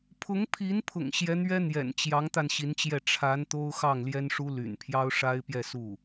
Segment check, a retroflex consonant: present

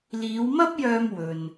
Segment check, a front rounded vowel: present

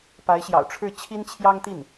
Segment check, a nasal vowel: absent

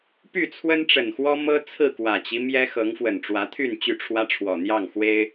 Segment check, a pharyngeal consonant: absent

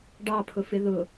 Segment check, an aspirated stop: present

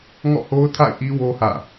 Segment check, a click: absent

